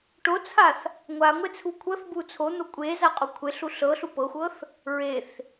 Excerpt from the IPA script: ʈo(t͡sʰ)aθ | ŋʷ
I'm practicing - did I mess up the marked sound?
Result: no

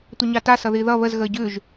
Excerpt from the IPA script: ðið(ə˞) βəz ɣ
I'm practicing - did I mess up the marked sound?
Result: yes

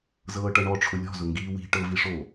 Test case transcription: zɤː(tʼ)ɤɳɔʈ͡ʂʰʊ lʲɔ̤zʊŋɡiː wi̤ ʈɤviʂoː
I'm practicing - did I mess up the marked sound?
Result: yes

